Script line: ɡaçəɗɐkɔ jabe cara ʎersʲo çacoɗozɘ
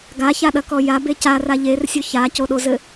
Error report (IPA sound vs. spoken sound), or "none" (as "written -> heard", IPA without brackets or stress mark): ə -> a